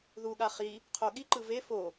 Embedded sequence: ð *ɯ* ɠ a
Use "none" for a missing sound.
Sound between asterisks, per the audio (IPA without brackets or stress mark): u